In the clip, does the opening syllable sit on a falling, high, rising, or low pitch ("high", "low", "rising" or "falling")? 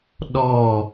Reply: falling